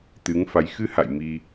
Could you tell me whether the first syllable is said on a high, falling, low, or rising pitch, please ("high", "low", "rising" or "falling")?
rising